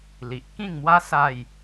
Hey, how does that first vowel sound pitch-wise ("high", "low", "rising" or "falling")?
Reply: low